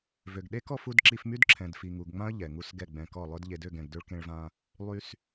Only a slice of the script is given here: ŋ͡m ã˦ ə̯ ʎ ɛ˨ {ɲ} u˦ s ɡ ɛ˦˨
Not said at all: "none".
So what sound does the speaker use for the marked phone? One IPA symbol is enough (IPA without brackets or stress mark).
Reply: ŋ